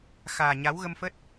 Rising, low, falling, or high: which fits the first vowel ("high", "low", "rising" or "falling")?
low